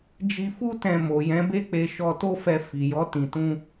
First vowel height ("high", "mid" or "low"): high